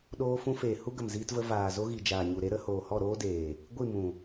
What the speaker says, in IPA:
ɗ oː˧ f ũ˧ f eː˨ h u˦ ɡ ə˨ m z iː˧ t v ə˧ v aː˨ z o˧ ɣ i˨ d͡ʒ aː˨ ɲ u˨ ɾ e˦ ɾ ə˨˦ h oː˨ h ɔ˦˨ ɾ oː˦ d eː˨ | ɡʷ i˦˨ m ũ˨

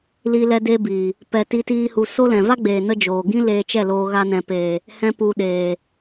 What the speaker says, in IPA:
l i˦ l ɛ˦ d e˦ b iː˨ | p ɛ˧ t i˦ t iː˦ h u˧ s o˦ l ɛ̃˨ v a˦ ɡ͡b eː˨ n ə˧ d͡ʒ oː˨ ɡ ĩ˦ l eː˧ t͡ʃ ɛ˦˨ l oː˧ ɣ a˧ n ɛ̃˨ p eː˨ | h ɛ̃˦ p u˧ ɗ eː˨

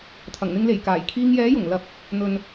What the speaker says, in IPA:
t̪ʰ ɐ˨˩ ŋ n̪ ɪ˧ ŋ l e˨˩ j k aː˨˩ j kʰ iː˧ ŋ j ɛː˨˥ j ʊ˨˩ ŋ l ɐ˧ p̚ | n̪ ɵ˨ n

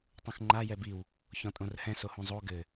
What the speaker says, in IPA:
tˤ ũ x ŋ͡ǃ a j ɛ b i w | ç ɔ̃ tʼ õ r h ɛ̃ s o h ũ zˤ o ɡ ɘ

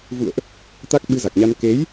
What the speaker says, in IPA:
v ṵ˧˨ ə̯ ʔ | t̪ a˦˥ k̚ ɓ ɨ˧ z a˨˩ k̚ ɲ a˧ n k e˨˦ j

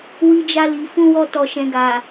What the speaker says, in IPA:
w i˧ d͡ʒ a˧ l i˨ f ũ˧ w ɔ˧ t ɔ˨ ʃ ɛ̃˨ ɡ a˨

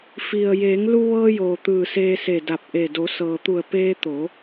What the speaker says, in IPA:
f i˩ ə̯ j eː˩˧ ŋ l u˧ ʋ ɤː˧ j oː˩ t̪ ɯː˧˩ s eː˧ s e˧˩ d a˧˩ p̚ ʔ e˧˩ d o˩˧ s ɤː˩ t̪ u˧˩ ə̯ p eː˧ t̪ o˩˧

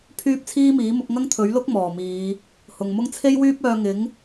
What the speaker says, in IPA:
pʰ yː˥ p̚ t͡sʰ iː˥ m iː˨˥ m ʊ˨˥ k̚ ŋ ɐ˥ ŋ t̪ʰ ɵ˨˥ ɥ l ʊ˥ k̚ m ɔː˨˩ m iː˨˧ | h ʊ˨ ŋ m ʊ˥ ŋ t͡sʰ e˥ j w yː˥ p̚ œː˧ ŋ ɪ˨˥ ŋ

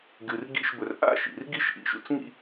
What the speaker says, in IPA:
ɡ ɨ˧ r ɡ ḭ˥˧ ʃ b ɵ˧ r ʔ a̰˥˧ ʃ ḭ˩˧ r ɡ i˥ ʃ ʔ ḭ˧ ʃ ṵ˧ t͡s ŋ ḭ˥˧

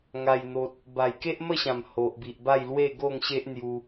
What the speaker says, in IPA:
ŋ a˨˩ j n̪ o˨ t̚ | b a˨˩ j k e˦ ʔ m ə˥˧ ɕ ã˨˩ m h o˨ ʔ b i˨ ʔ b a˥˧ j l w e˥˧ ɡ o˥˧ ŋ ɕ e˦ ʔ n̪ j u˧

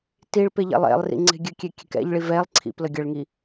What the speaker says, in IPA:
t i ɭ p e ʎ ɛ̰ lˠ ɛ̰ lˠ r ḭ ŋ͡ǀ e̤ ɡʲ ɘ kʲ e kʲ ɛ̤ k ɛ̰ ʎ ɭ i v ɛ lˠ ǀʰ ḭ p l ə ɡʲ ə ɭ ŋ i

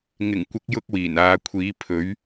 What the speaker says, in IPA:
ŋ ɪ˨˩ ŋ kʷ ɪ˨˥ k̚ j ʊ˧ k̚ w iː˨˩ n aː˨˧ kʷʰ iː˨˥ pʰ ɵ˨˥ ɥ

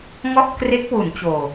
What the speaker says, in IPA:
ŋ ɔ˥˩ ʔ k r e˦˥ k̚ w u˩˦ n t͡ɕ oː˨˩

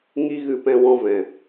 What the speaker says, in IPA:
ŋ i˦ ɣ ɨ˧ p ɛ̃˧ w ɔ̃˧ v ɛ̃˨

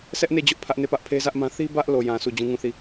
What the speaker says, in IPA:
s ɛ˦ ʔ n e˦˨ d͡ʑ ʊ˦ ʔ pʰ ä˦ ʔ n e˦˨ p ä˦ ʔ pʰ e˦ z ä˦ ʔ m ã˦ θ i˦ b ä˦ ʔ l o˨ j ã˨ sʰ u˦˨ d͡ʑ ũ˦ ŋ ũ˦˨ θ i˦˨

